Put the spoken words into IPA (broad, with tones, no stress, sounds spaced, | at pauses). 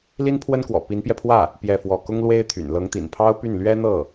l i˥ n pʰ w ə˥ n k w ɔ̰˨˩ p i˧˥ n p j ɛ˧ pʰ w ä˥˩ | p j ɛ˥˧ f w ɔ˥˩ k ʊ˥ ŋ l w e˥ ɪ̯ t̪ʰ y̰˨˩ n l ɤ˧˥ ŋ t̪ ḭ˨˩ n pʰ ɑ˥ ʊ̯ p y˥˩ n l ɥ ɛ˥ n̪ ɤ˥˩